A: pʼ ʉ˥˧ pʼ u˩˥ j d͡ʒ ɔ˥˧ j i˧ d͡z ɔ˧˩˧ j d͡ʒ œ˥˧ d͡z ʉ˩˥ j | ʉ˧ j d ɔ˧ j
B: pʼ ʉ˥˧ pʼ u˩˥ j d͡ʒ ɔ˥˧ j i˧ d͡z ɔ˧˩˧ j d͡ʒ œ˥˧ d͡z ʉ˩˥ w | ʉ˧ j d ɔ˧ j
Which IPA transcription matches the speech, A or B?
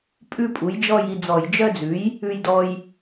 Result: A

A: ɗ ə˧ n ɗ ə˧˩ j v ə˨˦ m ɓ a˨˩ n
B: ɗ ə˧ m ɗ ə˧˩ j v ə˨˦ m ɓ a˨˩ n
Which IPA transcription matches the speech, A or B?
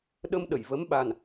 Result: B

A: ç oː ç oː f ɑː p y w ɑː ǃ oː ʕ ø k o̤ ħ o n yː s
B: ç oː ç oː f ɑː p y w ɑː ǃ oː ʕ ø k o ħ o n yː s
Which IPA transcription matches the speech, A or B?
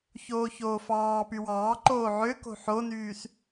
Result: A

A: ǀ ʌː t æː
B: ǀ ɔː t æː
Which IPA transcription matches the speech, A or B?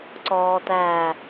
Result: B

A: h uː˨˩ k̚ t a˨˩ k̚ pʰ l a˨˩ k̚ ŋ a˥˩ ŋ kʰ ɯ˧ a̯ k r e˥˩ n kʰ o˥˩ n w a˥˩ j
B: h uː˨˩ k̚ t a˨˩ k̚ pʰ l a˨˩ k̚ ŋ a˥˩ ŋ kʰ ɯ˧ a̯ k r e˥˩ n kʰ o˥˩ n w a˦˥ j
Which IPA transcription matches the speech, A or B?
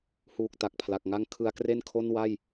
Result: A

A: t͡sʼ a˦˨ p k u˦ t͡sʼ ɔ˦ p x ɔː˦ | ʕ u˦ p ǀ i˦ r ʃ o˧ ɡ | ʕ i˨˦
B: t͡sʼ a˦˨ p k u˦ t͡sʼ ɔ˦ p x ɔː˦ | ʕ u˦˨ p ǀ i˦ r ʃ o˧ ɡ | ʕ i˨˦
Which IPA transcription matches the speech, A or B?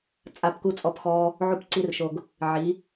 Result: B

